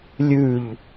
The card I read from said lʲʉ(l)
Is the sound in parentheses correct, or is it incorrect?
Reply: incorrect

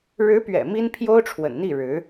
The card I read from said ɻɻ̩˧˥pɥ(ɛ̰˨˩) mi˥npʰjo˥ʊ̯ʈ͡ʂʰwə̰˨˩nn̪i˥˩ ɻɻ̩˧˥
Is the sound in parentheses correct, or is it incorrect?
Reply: correct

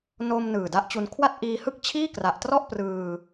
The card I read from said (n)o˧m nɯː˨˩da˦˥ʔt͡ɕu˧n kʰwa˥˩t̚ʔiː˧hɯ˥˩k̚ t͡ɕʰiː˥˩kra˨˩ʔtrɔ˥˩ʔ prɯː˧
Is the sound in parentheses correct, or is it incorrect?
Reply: correct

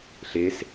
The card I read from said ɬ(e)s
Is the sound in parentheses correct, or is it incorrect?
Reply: correct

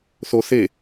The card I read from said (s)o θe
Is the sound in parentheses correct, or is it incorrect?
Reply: incorrect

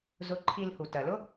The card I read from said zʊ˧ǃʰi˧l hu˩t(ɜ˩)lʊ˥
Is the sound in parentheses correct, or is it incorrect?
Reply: correct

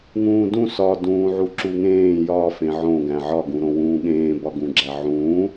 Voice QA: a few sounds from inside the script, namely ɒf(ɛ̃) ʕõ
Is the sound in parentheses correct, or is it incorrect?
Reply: incorrect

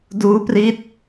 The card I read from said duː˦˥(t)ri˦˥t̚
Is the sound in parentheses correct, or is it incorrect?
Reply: incorrect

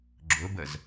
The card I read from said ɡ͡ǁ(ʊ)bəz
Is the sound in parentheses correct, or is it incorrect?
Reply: correct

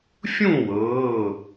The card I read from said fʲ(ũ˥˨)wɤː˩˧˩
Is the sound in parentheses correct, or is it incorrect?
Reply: correct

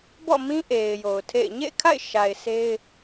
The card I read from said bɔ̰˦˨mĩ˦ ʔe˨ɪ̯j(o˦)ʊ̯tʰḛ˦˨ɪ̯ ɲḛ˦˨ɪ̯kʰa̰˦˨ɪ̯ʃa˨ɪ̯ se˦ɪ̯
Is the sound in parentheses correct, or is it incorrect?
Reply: incorrect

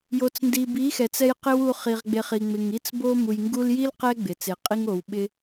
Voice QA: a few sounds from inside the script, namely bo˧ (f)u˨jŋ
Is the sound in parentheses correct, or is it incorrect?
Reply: incorrect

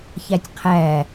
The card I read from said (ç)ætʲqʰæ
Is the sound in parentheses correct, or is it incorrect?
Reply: correct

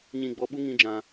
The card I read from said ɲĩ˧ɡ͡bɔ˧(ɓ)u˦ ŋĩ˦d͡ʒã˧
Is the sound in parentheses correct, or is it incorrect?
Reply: correct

